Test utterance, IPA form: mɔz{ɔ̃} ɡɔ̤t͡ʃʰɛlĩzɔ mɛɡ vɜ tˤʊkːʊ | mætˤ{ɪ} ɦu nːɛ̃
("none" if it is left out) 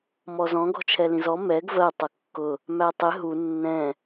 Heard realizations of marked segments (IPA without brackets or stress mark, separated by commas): ɔ̃, ɪ